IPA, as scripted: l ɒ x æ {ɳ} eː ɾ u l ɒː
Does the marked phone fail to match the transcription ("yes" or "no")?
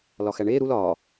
no